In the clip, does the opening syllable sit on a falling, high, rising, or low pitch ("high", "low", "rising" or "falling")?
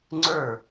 falling